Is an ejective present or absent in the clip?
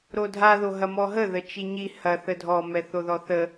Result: absent